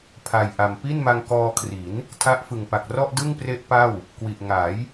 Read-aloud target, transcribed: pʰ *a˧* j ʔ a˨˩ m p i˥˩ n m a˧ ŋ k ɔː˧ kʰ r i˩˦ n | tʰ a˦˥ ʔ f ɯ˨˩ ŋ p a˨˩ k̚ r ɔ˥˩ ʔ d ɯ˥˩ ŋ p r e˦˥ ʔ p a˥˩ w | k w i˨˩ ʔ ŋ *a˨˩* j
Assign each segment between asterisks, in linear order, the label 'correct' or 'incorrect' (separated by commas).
incorrect, incorrect